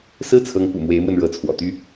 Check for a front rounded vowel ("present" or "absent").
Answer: present